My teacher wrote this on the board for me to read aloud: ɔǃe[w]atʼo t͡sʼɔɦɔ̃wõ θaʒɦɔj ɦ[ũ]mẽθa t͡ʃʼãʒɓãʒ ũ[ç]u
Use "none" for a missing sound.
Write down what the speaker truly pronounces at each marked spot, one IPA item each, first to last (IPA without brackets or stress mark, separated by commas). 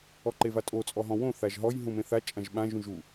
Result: v, ũ, ʒ